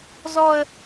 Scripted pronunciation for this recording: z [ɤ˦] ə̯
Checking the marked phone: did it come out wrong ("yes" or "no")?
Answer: yes